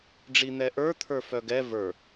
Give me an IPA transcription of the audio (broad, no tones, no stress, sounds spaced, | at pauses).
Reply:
ɖ͡ʐ i n̪ ɛ ʔ ə˞ t̪ʰ ə˞ f œ ɡ ɛ v ə˞